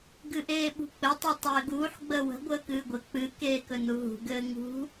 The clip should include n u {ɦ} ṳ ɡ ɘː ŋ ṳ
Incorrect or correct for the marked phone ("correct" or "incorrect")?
correct